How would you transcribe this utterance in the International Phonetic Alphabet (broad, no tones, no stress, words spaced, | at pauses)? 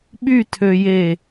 ɓytʰøje